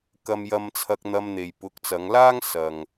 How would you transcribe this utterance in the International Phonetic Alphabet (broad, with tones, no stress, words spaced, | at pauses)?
kɐ˧mjɐ˧m t͡sʰɐ˧k̚n̪ɐ˧mn̪e˨j pʊ˨˥k̚t͡sɐ˨˧ŋlaː˥ŋ sɐ˨ŋ